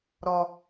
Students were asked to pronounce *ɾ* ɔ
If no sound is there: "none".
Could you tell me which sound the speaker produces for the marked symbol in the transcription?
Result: ɾ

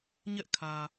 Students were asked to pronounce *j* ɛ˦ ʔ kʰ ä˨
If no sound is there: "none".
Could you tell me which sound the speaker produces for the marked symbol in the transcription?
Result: ɲ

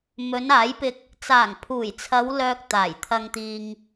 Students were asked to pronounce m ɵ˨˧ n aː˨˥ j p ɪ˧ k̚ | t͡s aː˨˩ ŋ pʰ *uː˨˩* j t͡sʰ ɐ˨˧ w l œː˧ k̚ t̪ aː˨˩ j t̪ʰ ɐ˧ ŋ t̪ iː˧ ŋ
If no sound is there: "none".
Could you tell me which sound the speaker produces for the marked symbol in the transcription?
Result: uː˨˩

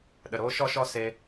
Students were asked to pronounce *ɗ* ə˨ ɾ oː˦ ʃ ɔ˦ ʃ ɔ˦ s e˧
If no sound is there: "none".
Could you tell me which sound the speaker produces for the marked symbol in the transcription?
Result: ɗ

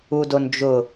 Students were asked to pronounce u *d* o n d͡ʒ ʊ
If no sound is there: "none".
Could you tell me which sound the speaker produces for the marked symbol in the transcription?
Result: d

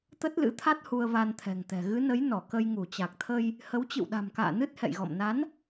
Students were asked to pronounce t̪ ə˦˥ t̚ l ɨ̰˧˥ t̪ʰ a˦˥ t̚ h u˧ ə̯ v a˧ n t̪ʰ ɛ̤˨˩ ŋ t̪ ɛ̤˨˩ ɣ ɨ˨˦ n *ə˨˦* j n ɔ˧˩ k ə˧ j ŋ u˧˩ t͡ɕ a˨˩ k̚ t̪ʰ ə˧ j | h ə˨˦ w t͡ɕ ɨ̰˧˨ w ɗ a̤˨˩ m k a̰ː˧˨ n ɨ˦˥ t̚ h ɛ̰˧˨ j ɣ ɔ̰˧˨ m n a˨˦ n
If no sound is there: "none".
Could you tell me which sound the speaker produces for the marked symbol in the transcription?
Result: ə˨˦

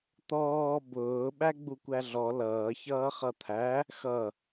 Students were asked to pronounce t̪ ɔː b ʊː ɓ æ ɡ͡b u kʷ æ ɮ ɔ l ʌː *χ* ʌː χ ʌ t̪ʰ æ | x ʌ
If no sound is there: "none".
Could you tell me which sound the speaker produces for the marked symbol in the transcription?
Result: ç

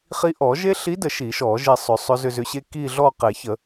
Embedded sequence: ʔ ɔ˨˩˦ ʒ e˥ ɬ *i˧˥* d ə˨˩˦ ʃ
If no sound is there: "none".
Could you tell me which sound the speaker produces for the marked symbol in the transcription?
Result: i˧˥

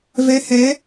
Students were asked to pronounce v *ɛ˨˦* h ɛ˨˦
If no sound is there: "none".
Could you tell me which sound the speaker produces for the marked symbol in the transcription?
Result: ɛ˨˦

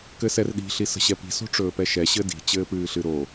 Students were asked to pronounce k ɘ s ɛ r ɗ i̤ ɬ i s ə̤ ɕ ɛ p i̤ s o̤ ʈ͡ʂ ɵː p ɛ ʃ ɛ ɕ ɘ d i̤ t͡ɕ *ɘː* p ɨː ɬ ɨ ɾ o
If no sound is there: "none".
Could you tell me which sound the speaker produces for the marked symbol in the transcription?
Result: ɘː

